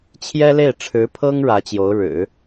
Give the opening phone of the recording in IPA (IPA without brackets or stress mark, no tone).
t͡ɕʰ